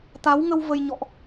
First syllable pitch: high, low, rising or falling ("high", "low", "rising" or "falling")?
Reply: rising